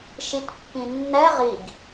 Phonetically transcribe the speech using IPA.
ʃ i t pː ĩ nː ɛ ʁ i ɡ

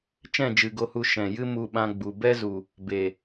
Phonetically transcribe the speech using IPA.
t͡ʃ ɛ̃˦˨ d͡ʒ ɨ˨ ɡ o˧ h u˧ ʃ ɛ̃˨ j ɨ˦ m u˧ ɓ ã˧ ɡ͡b u˨ b ɛ˦ z u˨ | b e˨

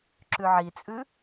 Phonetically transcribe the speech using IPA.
ǁ ʉ ʕ i t͡sʼ ʉ

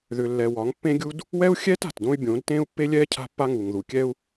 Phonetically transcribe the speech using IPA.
ð ʏ˨ lː ɛ˨ w ɒ˨˦ ŋ pː ẽ˦ ɡʲ u˦ d | w ɛ˦ u̯ xʲ ɛː˦ t a̤˨ t d õ˦ y̯ bʲ õː˨˦ d t ẽː˦ u̯ pː e˦ lʲ ɛː˦ cʰ a̤˦ pː a˦ ŋ uː˨ ŋ ð u˨ kʲ ɛ˦ u̯

